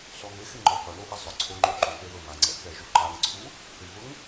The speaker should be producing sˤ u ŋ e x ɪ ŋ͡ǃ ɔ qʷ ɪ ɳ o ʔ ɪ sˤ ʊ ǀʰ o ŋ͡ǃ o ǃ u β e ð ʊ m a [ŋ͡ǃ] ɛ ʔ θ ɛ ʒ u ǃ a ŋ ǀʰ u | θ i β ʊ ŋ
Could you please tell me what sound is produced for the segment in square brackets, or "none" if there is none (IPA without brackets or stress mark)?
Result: ŋ͡ǀ